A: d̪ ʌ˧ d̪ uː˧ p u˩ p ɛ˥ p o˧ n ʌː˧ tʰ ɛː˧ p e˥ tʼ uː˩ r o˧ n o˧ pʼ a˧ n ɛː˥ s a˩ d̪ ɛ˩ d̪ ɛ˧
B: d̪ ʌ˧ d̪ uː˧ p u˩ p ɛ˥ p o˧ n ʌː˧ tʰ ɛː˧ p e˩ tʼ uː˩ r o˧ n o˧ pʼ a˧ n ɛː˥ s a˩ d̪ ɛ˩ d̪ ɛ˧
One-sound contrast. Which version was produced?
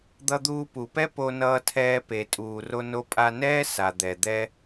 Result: B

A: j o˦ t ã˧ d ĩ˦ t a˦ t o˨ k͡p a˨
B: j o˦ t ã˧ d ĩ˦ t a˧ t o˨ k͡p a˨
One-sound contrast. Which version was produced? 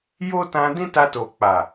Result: B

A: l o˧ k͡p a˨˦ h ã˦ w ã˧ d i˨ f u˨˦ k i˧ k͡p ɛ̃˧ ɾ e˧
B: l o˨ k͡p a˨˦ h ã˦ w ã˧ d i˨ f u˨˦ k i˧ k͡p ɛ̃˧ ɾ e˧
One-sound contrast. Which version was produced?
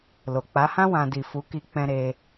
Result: B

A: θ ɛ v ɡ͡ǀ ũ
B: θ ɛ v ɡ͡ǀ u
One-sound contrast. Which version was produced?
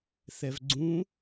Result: A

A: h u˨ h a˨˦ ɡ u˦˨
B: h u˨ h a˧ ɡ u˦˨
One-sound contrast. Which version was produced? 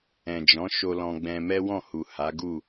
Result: A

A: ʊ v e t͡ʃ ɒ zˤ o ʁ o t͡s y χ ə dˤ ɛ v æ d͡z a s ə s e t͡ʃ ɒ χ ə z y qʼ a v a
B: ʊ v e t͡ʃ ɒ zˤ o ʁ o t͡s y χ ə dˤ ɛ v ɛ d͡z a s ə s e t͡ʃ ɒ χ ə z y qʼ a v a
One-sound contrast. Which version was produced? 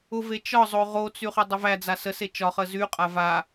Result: A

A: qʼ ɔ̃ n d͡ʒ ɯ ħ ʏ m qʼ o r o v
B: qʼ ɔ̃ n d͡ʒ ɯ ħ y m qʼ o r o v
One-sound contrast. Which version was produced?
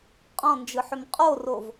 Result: A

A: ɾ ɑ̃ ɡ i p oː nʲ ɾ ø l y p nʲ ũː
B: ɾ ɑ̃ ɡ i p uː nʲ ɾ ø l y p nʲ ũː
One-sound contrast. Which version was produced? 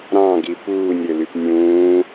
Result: B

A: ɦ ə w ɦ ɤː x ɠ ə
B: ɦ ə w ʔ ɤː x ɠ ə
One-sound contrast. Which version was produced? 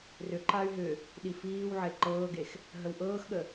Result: B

